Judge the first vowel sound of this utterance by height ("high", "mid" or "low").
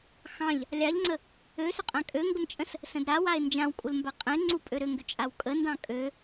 low